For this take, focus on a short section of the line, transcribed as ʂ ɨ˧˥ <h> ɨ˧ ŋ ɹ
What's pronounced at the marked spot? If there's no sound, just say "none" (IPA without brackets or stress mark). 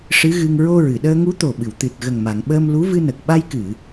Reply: ɣ